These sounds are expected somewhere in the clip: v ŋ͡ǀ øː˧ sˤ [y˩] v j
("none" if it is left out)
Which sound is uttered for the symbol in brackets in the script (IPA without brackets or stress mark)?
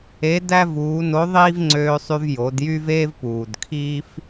y˧